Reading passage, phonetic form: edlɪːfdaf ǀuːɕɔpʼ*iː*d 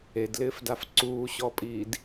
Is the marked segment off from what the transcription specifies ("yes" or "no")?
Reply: no